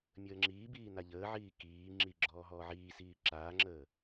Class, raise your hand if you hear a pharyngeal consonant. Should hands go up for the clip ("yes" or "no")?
yes